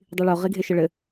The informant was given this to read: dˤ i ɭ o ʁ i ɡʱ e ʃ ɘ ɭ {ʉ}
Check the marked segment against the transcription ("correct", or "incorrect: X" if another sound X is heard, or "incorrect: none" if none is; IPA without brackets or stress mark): incorrect: ɘ